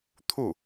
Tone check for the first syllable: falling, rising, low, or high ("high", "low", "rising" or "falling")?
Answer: falling